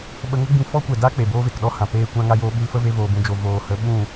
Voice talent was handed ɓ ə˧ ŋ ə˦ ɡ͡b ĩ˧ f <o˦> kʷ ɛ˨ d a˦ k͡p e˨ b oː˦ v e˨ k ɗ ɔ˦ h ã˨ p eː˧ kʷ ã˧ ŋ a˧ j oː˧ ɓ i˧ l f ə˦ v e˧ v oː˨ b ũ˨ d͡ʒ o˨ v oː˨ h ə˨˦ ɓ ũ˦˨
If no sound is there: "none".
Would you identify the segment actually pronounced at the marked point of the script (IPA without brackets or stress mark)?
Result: ɔ˦